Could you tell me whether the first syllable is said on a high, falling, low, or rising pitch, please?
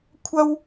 high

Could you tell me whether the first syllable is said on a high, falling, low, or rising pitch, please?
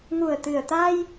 low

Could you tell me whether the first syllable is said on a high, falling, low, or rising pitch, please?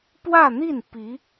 falling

